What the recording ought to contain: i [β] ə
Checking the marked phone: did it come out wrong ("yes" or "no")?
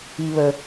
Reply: no